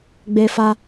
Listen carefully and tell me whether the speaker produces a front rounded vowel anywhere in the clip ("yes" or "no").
no